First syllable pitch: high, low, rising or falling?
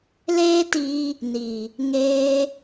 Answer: high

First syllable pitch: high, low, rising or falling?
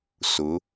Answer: rising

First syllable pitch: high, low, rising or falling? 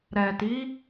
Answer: low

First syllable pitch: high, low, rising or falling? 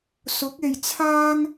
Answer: rising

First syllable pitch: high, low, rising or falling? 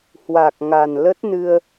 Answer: low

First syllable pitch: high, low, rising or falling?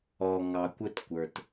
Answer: low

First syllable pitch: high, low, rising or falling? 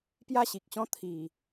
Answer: falling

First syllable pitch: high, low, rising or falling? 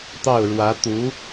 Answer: falling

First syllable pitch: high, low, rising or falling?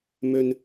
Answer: low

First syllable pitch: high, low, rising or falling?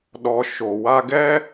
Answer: low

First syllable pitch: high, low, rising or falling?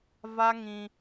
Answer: high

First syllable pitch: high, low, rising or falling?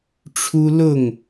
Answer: high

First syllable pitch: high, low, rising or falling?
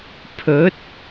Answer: rising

